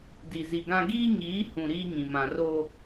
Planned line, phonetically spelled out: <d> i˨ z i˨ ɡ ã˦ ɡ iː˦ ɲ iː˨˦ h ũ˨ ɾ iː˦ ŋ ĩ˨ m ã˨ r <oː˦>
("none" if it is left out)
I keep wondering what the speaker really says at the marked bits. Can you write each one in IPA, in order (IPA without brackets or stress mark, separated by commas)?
d, oː˦